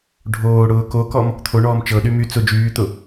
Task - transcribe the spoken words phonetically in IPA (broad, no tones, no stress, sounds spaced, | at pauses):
ɖʱ oː ɽ ʊː k o k ɔ m | t̪ʰ o ɳ ɔː m t͡ʃ ɤ ɗ y m y t͡s ʊ d͡ʒ yː t̪ ʊ